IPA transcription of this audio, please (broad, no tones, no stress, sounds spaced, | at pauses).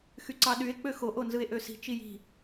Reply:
x y ǀ ɑ ɗ y e̯ k͡p ø x o ʔ o n z ɯ e̯ ʔ ø s i̤ t͡ʃ i j i̤